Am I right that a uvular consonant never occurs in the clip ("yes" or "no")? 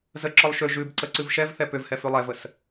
yes